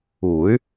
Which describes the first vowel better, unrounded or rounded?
rounded